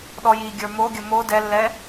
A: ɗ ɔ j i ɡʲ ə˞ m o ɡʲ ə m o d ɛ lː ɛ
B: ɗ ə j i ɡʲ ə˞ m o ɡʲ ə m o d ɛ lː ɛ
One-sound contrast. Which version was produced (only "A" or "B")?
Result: A